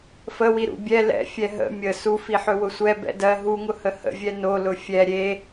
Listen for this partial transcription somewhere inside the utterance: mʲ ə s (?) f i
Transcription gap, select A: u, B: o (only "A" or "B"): A